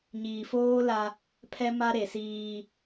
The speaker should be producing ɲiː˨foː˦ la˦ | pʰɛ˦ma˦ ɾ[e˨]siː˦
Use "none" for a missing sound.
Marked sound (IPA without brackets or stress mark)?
e˨